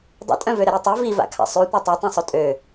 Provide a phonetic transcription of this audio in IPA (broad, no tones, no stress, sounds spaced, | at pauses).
dˤ ṵ tʼ œ̃ v ø ɾ ə ɾ e tˤ y v i v a̰ kʰ a̰ sˤ y tʷ œ tˤ ɛ tˤ õ sˤ o tʼ ø